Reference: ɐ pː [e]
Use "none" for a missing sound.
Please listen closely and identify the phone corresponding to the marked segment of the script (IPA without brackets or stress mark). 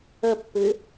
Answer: ɘ